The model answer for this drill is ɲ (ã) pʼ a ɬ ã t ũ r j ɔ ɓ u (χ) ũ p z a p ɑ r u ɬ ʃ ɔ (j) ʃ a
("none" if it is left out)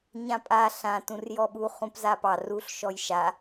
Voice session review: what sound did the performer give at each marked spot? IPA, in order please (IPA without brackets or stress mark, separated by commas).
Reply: ã, χ, j